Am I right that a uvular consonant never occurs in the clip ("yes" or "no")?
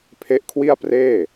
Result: yes